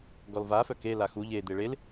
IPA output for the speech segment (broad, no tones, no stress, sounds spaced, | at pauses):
ɡ ɔ l v a f œ k e l a x u ʎ e d̪ e ɭ e l